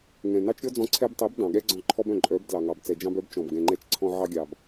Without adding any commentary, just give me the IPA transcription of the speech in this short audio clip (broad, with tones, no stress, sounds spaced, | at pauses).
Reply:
ŋ ɛ̃˨ n ɑ˦ t͡ʃ ɾʲ ɔ˦ d͡z ɔ̃˧ ǀʰ ɛ˧ b tˤ ɛ˨˦ b d ɑ̃˨ ɠ ɛ˦ ɡ͡ǀ ɔ̃˧ ǃʰ ɔ˦ b œ̃˨ ǃʼ œ˨˦ b d l ɑ˨ ŋ ɑ˨ b t͡s ɛ˨ d͡ʒ ɑ̃˧ b œ˨˦ b t͡ʃ ɔ̃˨ b ɡ ɛ̃˨ ŋ͡ǃ ɛ˧ t͡ʃ ǀʰ ɔ̃˧ ʕ ɑ˧ ɡʲ ɑ˨ b